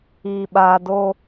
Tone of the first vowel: low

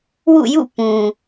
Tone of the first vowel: falling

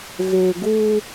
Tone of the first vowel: low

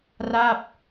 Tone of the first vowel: falling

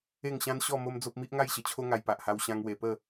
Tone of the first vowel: falling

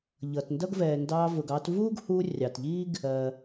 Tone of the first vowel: low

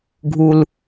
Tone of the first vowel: high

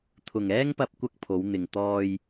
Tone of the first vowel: low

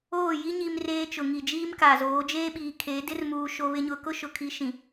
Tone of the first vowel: falling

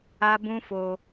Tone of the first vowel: high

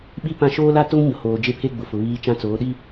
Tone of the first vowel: high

